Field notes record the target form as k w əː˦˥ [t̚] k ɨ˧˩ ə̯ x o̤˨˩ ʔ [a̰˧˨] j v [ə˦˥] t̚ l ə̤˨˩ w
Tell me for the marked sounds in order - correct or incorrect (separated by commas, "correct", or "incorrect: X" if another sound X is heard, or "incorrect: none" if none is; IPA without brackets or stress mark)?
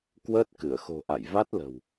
correct, correct, incorrect: a˦˥